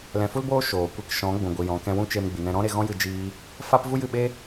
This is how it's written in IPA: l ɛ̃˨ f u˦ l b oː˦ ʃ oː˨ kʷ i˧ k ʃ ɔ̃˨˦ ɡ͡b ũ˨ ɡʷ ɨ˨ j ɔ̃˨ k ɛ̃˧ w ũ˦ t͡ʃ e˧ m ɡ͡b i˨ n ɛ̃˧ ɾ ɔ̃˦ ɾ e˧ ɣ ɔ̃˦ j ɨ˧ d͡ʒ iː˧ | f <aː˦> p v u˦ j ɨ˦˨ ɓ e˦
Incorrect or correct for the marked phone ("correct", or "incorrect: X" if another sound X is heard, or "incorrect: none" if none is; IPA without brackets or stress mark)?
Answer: incorrect: a˦